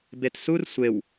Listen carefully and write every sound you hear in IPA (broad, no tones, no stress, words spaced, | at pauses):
betsur sʷew